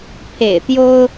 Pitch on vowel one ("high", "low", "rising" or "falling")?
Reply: low